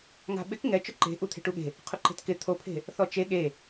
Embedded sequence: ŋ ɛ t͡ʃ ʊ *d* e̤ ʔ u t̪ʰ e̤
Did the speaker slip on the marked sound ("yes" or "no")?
yes